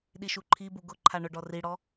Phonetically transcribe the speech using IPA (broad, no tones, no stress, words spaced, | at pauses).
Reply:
ɗiʃuǃʰibu ɡʊ ǃʰaɳʊɖɔ riɽɔ